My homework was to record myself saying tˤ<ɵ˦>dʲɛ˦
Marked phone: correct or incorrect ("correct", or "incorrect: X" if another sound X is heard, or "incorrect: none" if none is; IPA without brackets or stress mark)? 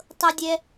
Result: incorrect: ɤ˦